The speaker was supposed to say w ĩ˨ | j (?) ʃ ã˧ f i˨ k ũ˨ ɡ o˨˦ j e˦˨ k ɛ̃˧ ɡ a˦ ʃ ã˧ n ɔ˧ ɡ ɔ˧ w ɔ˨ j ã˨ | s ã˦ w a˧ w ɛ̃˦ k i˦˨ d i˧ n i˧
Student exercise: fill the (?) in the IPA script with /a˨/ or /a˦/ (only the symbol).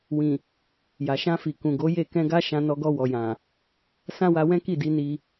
a˨